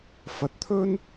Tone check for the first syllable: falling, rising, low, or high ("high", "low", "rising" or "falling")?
rising